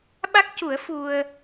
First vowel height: low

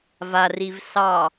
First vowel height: low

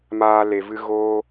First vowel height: low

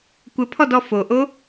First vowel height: mid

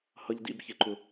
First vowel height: mid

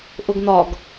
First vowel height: high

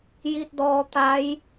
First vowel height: high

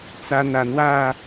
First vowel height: low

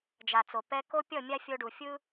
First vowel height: low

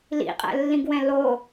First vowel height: high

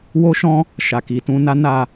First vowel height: mid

